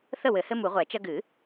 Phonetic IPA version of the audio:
θ ə˥˨ w ɘ˨˩˦ h ɘ˦ m u˨˩˦ ʁʷ ɛ˨˩˦ t͡ʃ ɐ˦ ɡ ɨ˨˩˦

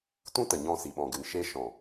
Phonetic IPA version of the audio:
t ũ˦ t ə˨ ɲ ɔ̃˧ s i˨ ɓ ɔ̃˨ ɡ ɨ˨ n ʃ e˧ ʃ ɔ̃˨

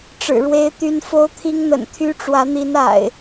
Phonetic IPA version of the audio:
ʈ͡ʂ ɻ̩˨˩ ɻ w e˦ ɪ̯ t̪ y˦ n f o˦ ʊ̯ t̪ʰ i˦ ŋ n̪ ə̰˨˩ n t̪ʰ y˦ ʈ͡ʂ w ä˨˦ n̪ i˨˦ n a̰˨˩ ɪ̯

